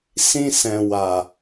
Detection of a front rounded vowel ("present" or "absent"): absent